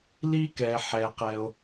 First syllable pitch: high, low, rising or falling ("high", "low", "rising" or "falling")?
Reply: high